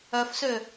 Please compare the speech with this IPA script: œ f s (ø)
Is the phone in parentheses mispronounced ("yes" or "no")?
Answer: no